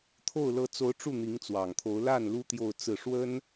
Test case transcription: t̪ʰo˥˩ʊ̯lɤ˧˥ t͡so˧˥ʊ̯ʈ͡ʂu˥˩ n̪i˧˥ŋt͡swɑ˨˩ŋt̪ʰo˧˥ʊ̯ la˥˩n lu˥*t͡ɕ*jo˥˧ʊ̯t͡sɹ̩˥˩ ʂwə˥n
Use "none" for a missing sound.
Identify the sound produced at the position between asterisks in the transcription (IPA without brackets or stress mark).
t̪